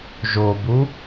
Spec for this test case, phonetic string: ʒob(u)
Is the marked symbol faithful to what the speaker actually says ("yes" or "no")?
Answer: yes